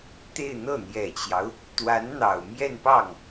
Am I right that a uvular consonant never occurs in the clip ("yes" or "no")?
yes